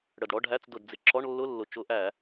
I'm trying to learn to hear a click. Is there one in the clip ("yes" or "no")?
yes